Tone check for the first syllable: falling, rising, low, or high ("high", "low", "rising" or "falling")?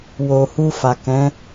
low